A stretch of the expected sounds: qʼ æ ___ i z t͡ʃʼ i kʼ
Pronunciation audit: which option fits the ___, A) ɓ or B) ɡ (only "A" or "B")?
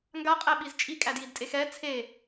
A